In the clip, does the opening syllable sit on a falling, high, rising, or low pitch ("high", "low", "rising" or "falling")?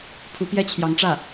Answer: rising